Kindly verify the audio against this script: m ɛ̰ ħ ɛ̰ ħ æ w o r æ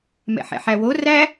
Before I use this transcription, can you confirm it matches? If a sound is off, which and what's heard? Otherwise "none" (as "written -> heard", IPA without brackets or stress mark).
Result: none